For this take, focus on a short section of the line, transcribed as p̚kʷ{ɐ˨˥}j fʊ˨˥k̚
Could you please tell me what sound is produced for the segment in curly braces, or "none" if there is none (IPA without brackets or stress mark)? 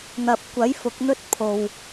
ɐ˨˥